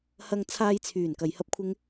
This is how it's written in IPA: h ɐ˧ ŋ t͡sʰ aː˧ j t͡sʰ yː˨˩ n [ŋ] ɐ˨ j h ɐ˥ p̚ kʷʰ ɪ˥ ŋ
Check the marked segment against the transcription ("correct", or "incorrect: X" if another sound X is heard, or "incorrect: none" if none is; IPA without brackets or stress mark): incorrect: k